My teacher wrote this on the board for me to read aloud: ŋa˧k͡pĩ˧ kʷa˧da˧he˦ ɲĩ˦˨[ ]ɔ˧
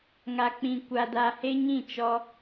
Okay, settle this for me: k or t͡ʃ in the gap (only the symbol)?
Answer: t͡ʃ